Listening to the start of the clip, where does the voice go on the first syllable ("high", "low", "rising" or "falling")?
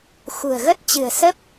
low